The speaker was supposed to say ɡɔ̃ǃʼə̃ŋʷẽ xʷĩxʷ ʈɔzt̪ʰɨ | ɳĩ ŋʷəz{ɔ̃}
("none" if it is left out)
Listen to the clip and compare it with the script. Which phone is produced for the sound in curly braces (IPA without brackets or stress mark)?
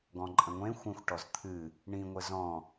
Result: ɔ̃